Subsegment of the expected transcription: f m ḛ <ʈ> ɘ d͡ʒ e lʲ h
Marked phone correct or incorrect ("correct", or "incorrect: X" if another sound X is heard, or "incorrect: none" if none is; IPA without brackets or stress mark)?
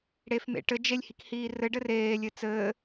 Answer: correct